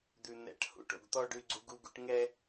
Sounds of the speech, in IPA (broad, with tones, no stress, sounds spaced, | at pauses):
d̪ ʉ˨ n̪ ɛ̰˨˦ ʈ h ṵ˨ ʈ o̰˨ ɡ t̪ ɔ˦ ɖ ʉ˦ ɡ͡ǀ u˦ ɡ u˦ ɡ ṵ˦ ʈ ŋ ɛ˦